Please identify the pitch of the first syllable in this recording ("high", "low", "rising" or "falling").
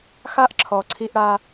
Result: high